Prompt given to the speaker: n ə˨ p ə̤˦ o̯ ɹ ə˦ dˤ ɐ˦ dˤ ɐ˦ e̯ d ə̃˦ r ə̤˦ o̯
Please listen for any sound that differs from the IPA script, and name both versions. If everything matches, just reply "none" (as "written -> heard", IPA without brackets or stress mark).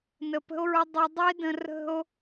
none